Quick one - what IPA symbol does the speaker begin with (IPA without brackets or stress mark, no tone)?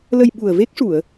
l